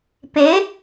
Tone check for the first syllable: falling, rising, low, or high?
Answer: rising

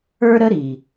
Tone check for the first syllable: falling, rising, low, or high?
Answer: high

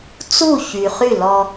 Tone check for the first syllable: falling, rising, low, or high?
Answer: falling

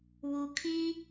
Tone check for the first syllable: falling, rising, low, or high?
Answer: low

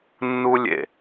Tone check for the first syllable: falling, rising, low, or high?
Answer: high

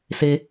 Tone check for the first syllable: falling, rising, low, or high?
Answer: high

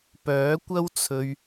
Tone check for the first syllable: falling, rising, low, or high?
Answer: rising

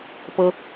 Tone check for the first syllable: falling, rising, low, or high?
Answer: high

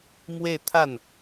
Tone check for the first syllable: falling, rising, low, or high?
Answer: falling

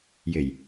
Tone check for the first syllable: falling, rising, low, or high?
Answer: low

